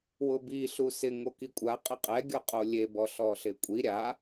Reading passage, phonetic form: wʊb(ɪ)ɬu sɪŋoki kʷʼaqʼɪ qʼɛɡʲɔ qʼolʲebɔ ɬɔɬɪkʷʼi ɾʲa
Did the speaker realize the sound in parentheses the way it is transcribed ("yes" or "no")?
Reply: no